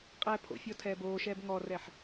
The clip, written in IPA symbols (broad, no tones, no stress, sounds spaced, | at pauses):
qʼ ɛː pʰ o̰ fʲ ɔ tʰ ɛː b oː ʃ ɛː b ŋ ɔ r ɛ ħ